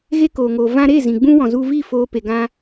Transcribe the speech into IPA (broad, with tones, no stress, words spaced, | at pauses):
ɣe˦koː˨ŋoː˨ vã˧ɾe˦˨ zĩ˨ ɡ͡bũ˦ wɔ̃˨ zu˧vi˦˨foː˧ pe˧ɡã˦